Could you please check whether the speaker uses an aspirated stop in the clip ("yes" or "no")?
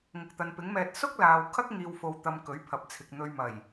yes